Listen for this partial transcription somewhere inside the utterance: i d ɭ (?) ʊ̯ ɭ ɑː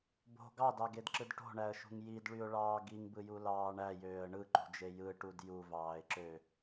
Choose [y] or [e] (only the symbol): y